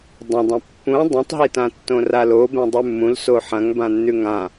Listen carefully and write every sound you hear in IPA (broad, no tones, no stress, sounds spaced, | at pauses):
dˤ ɐ̃ dˤ ɐ̃ pː ũ dˤ ũ tˤ ɦ i t ã tː õ r a l o b ẽ dˤ ʉ mː ũ l s o ħ ɐ̃ ŋ b ã nː ʉ ŋ ã